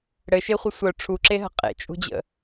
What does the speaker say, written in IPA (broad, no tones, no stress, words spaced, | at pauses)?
ɽɘʃeχʷə sʷœ ʈ͡ʂʰuǁeɦə̤ qʼḛt͡ʃʼṳd͡ʑə̰